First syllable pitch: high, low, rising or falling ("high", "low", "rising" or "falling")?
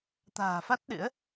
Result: low